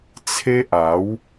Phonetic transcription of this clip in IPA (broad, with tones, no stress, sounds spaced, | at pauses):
t͡sʰ e˦ ʔ a˨˦ w